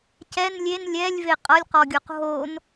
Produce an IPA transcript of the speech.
c ɛ n lʲ e n lʲ ɛ lʲ v e qʼ ʌ lʲ q ɔ ɡʲ o q ɦ o n

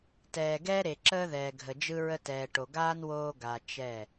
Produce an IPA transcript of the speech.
t ɛː˨ ɡ ɛː˦ ɾ e˨ ǁ əː˦ ð ɛː˨ ɡʱ ə˨ d͡ʒ ɯ˦ ɹ ə˦ t ɛː˨ ʈ o˨ ɡ aː˦ n w oː˦ ɡ a˨ t͡ʃ ɛ˦˨

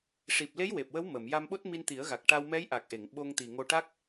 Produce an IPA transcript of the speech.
ʂ i˨˩ p̚ l e˧˥ j w e˨˩ p̚ w ə˧˥ w m ə˨˩˨ m j a˧ m ɓ o˦˥ t̚ m i˧ n t̪ i˨˩˦ ə̯ ɣ a˨˩ k̚ ʈ a˧ w m ɛ˧˥ j ʔ a˨˩ k̚ ʔ e˨˩˨ ŋ ɓ o˧ ŋ t̪ i˨˩ ŋ o˧ ʈ a˦˥ k̚

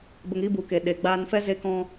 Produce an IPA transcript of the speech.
b ə˧ ŋ i˦ b u˨ k e˨ ɗ e˨ ɡ͡b aː˧ n f ɛ˦ z e˦ k ɔ̃˦

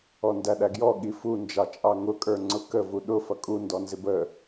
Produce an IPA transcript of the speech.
ɔ n d æ ɗ æ ɡ j ɔ ɠ i f u n d͡ʒ ɑ t͡ʃʼ ɑ ŋ ʊ kʼ ə˞ ŋ͡ǀ ʊ k ə v u ɗ ʊ f ʌ kʼ u n d ɔ n z ɪ b ə

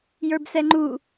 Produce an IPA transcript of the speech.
j ə˞ b s ɛ ŋ͡ǃ u

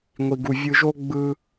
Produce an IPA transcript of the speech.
ŋʷ i˦ ɡ u˦ vʲ ɯ˦ ʒ o˥ ɡ͡b ɯ˦

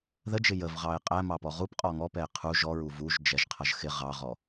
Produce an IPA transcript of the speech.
ð ə d͡ʒ ɪ j ə v ʁ ɑ ɪ̯ qʼ æ m ɑ p ɔ ʁ u p qʼ ɔ ŋ ɔ p ɛ ɪ̯ qʰ u ʒ ɔ ɹ u v u ʒ d͡ʒ ɛ ʒ qʰ ʌ ʒ x ɪ ʁ ɑ ʁ ɔ

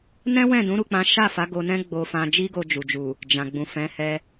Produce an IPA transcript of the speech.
n ɛ̃˦ w ɛ̃˦˨ d ũ˨˦ ɾ u˦˨ k͡p ã˨˦ ʃ a˦˨ f a˨˦ ɡ o˧ n ɛ̃˦ ɡ͡b o˧ f ã˧ d͡ʒ i˦ ɡ o˧ d͡ʒ u˨ d͡ʒ u˨ | d͡ʒ ã˨ ɡ͡b ũ˨ f ɛ̃˨˦ h ɛ˧

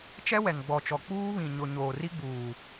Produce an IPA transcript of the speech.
t͡ʃ ɛ˦ w ɛ˨ ŋ ɡ͡b ɔ˨ t͡ʃ ɔ˨ k͡p uː˦ β ĩ˨ ɲ ʊ˨ ɲ oː˨ r i˦ ɡ͡b uː˨

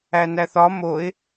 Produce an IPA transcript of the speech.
æ n æ θ ɒ m o ɪ̯

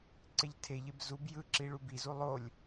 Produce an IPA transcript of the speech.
ǀ e ʎ tʰ e ʎ e b z u b j ɯ ǁ i ɭ u b i z u lˠ o lʲ

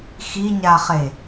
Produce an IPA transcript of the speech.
x i ɲ a χ e

